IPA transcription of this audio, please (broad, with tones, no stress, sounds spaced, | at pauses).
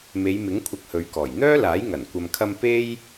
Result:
m e˨˧ j m ɪ˨˥ ŋ kʷʰ ɐ˧ k̚ h ɵ˨˧ ɥ k ɔː˨˩ j n̪ œː˥ l aː˨˥ j ŋ ɐ˨˩ n kʷ ɐ˨ m kʰ ɐ˧ m p e˥ j